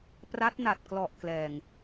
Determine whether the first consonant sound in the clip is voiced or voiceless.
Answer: voiceless